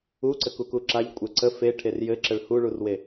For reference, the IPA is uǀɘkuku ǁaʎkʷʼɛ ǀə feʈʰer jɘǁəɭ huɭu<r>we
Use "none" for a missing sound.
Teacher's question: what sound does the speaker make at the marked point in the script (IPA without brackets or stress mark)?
r